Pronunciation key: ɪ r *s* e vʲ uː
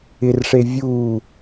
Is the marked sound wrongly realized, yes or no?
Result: yes